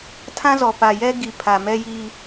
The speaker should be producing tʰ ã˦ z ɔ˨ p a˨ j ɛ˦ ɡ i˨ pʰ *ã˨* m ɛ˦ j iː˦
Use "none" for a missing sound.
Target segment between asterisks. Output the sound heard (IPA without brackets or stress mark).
a˨